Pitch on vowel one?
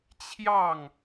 falling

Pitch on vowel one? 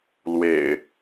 low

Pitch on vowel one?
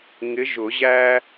rising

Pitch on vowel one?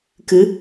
rising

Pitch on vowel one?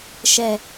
low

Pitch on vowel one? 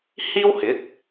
high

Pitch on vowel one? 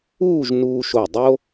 falling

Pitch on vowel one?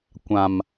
low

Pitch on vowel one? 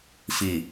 low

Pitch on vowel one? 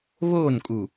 falling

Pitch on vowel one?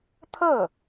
falling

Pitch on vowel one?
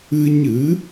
high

